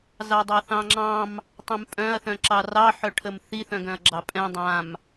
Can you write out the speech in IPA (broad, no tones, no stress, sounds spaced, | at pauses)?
z ɑ dˤ ɑ θ ɑ̃ ŋ͡ǁ ɑ̃ m | tˤ ɛ̃ m pʼ œ̃ ɐ̯ θ œ̃ ǁ ɑ r ɑ ħ œ ʈʰ ə m θ i θ œ̃ ɡ œ̃ ɐ̯ ɡ͡ǁ ɑ pʼ ɛ̃ dˤ ã m